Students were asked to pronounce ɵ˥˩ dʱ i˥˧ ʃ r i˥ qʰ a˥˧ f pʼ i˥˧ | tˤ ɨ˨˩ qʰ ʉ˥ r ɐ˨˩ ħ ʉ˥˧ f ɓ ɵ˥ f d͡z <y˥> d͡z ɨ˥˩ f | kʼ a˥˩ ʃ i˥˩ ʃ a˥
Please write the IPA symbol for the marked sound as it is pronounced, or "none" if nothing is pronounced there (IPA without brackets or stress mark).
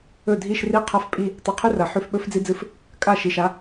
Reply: i˥